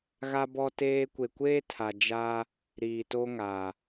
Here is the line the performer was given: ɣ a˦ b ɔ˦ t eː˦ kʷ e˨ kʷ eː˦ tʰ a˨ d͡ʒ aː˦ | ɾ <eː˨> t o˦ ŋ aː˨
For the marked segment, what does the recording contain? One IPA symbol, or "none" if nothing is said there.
iː˨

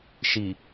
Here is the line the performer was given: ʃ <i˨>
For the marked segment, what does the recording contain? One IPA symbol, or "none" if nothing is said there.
i˨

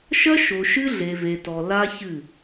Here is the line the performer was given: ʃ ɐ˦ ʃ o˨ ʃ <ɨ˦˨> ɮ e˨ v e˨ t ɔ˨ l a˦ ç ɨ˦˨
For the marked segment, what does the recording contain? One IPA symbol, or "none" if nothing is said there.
ɨ˦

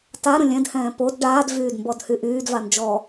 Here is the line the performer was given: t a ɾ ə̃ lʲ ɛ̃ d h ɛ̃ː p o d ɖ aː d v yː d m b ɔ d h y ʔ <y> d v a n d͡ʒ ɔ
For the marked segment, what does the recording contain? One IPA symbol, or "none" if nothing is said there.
yː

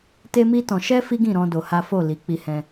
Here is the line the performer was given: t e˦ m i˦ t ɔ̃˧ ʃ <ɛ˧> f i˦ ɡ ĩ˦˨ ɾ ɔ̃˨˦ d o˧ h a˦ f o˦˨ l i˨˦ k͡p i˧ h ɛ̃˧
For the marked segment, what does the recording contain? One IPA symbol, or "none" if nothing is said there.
ɛ˦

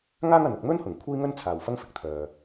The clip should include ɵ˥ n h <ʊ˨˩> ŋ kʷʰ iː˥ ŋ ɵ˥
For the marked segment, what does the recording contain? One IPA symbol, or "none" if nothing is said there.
ʊ˨˩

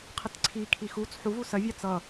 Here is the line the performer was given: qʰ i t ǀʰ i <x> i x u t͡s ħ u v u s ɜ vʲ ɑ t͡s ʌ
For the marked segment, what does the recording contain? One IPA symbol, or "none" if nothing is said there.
kʰ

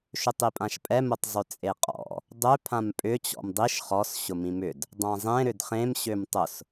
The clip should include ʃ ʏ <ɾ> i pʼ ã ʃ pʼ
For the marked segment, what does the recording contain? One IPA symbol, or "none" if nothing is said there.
tˤ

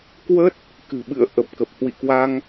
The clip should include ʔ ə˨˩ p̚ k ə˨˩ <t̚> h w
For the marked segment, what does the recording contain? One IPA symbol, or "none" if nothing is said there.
p̚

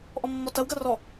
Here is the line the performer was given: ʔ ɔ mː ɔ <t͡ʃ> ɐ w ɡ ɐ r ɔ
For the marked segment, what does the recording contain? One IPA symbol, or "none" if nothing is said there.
t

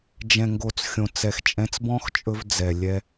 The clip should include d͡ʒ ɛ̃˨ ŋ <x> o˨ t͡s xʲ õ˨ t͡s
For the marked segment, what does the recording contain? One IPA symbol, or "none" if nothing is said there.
ɡ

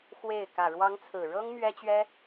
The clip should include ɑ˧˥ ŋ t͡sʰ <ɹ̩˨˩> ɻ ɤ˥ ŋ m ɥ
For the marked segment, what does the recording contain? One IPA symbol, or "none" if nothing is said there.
ɹ̩˨˩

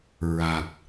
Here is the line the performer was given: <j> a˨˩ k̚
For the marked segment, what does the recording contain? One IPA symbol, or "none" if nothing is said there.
ɹ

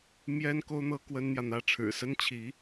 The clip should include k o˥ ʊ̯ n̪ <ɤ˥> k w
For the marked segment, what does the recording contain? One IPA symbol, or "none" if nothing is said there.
ɤ˥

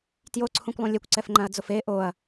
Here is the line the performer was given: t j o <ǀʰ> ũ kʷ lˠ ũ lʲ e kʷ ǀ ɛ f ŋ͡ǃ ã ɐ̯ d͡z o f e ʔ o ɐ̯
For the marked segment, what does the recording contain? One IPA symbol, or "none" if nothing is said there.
ǀʰ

